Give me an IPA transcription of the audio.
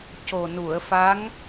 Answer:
c o˨˩ n u˨˩˨ ə̯ f a˧˥ ŋ

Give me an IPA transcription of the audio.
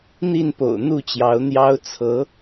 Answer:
n̪ i˥˨ n p o̰˨˩ ʊ̯ n̪ u˥˨ t͡ɕ j ɑ˨˦ ʊ̯ n̪ j ɑ˦ ʊ̯ t͡sʰ ɤ˨˦

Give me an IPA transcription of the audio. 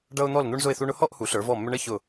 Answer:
ɖ ʌ˧ ʊ̯ n̪ ɔ˧˩ l n̪ u˧ ɳ z ʊ˧˩ ɪ̯ θ u˧ ɳ ʊ˧ h ɔ˥˧ ʔ h u˩˧ ɬ ə˞˩˧ v ɔ˧˩ mː ʏ˧ ɳ ə˥ ç ʊ˧˩

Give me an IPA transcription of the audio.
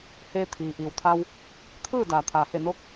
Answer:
h eː˧ t̪ʰ iː˩ ʔ iː˩ w t̪ʰ a˧ w | t̪ʰ ɯː˥˨ d aː˩ t̪ʰ aː˩ h e˧˩ n o˧˥ k̚

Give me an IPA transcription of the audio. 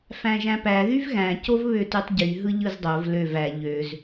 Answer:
f æ̃ ʒ æ̃ p æ ð y v ɣ æ̃ c o v β ø t y tˤ ɟ y ɦ ɯ ʎ ɯ z dˤ o v l ø v æ ʎ ø z

